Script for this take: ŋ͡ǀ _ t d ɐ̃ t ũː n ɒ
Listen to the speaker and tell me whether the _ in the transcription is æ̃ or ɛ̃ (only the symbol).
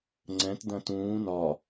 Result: ɛ̃